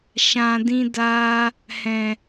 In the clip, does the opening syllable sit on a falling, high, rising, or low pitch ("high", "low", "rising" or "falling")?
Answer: low